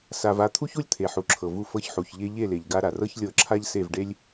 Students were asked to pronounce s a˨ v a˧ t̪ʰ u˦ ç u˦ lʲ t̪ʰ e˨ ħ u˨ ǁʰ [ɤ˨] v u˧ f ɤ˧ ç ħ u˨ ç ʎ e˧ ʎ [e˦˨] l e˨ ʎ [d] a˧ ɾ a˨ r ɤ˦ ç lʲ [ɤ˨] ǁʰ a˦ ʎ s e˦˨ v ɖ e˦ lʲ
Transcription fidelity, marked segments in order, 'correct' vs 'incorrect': correct, correct, incorrect, incorrect

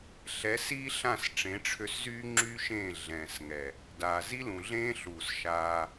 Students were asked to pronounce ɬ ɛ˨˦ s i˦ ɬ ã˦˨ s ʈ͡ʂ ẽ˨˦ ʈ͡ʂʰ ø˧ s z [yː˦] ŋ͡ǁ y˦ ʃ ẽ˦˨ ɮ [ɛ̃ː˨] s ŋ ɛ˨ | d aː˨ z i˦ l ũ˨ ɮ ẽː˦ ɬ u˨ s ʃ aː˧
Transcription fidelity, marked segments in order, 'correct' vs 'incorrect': correct, correct

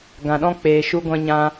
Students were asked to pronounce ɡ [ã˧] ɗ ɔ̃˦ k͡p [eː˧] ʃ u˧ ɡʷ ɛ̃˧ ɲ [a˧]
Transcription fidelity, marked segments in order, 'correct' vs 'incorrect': incorrect, incorrect, incorrect

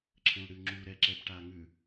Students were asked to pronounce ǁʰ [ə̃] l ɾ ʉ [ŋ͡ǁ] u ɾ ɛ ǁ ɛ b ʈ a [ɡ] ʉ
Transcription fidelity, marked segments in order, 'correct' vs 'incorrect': correct, correct, incorrect

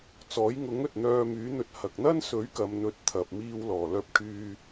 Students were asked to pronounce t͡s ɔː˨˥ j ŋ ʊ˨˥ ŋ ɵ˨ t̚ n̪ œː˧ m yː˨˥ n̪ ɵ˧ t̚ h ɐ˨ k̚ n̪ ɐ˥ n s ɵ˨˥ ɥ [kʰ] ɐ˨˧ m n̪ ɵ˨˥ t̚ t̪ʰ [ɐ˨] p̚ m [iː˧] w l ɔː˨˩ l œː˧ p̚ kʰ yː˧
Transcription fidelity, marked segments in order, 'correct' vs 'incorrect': incorrect, correct, correct

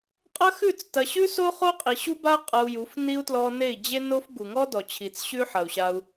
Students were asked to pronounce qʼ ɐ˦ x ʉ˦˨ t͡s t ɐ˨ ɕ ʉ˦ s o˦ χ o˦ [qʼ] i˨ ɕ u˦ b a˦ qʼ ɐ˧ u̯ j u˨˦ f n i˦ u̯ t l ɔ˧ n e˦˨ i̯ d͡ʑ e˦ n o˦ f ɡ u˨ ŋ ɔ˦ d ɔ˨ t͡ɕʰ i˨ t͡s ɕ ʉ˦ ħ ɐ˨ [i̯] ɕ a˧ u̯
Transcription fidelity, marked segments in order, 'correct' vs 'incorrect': correct, incorrect

